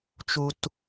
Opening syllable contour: high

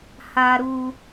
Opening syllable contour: low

